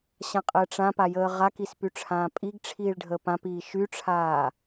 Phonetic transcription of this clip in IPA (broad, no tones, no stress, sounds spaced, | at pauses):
ɕ ã qʼ əː ʈ͡ʂ ã p a j əː ʁ a k i s p y ʈ͡ʂʰ ãː pʼ i ɡ ʈ͡ʂʰ iː ɭ ɖʱ əː p ã p iː ʃ y ʈ͡ʂʰ aː